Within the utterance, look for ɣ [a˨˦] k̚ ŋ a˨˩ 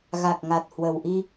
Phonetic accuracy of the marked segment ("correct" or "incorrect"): incorrect